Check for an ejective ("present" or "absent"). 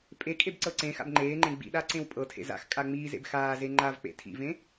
present